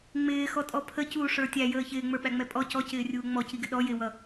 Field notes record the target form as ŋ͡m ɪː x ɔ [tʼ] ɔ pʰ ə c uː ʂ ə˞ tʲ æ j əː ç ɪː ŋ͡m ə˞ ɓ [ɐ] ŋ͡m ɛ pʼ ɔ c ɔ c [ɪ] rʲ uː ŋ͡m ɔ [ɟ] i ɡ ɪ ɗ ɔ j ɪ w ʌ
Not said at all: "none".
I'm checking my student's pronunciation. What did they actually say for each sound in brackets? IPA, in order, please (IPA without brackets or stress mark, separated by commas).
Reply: tʼ, æ, ɪː, c